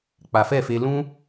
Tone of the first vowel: low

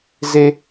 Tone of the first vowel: high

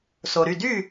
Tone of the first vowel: low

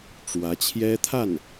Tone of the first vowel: rising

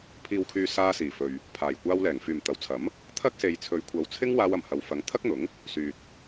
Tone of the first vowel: low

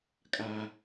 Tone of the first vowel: low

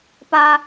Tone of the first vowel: high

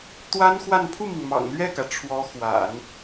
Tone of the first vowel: high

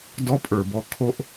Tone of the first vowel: high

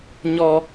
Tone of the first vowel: high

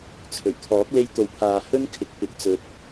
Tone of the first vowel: low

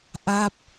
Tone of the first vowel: falling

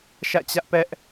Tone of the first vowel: falling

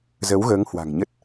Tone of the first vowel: rising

